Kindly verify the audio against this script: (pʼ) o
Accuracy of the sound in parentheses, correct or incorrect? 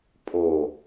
correct